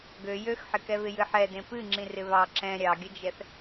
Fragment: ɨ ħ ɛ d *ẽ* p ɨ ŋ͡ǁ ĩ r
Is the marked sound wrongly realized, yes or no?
no